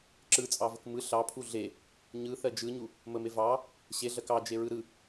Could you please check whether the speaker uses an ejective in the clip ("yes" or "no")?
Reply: yes